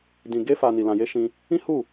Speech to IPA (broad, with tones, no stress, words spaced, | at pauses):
dĩ˨ɡe˧fa˨ ni˨lã˨je˨˦ ʃĩ˧ | ĩ˦hu˦˨